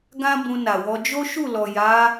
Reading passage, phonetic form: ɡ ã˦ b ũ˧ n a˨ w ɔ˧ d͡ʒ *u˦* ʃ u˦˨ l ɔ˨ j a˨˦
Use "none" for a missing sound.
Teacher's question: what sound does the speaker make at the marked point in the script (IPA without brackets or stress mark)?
o˦